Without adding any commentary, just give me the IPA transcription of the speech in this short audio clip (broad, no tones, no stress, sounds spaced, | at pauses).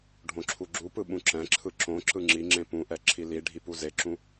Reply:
ɖʱ õ ǁʰ u ɡ͡ǁ u p ɯ ɓ ũ ǁ ɛ̃ ǁʰ ɯ ǁ õ ǁ ɯ ŋ͡ǁ i ŋ͡ǁ ẽ p ũ ʔ ɛ ǁʰ i l i ɖʱ i p u z e ǁ ũ